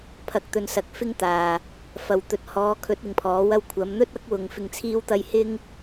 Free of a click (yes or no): yes